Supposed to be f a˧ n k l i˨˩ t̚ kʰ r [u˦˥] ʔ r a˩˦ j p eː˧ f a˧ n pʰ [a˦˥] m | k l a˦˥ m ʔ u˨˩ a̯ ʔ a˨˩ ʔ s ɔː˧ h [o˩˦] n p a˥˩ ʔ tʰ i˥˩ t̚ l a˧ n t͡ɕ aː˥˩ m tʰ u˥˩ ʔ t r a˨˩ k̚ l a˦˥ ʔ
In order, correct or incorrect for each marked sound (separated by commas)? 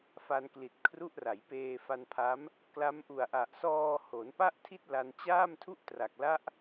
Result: correct, correct, correct